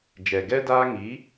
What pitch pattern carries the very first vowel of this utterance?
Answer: low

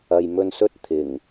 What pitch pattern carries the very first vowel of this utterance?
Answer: low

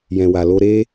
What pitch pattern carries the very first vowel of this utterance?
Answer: low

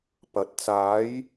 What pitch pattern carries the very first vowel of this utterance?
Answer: rising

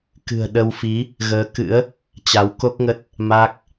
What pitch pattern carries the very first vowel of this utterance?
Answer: low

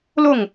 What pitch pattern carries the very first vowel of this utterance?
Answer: falling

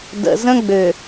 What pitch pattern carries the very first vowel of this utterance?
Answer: low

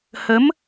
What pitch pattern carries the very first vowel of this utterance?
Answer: rising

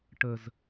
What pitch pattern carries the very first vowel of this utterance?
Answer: low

